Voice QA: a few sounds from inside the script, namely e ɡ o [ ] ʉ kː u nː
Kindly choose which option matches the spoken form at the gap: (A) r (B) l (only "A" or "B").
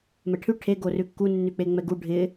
A